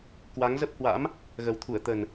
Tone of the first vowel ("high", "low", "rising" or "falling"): rising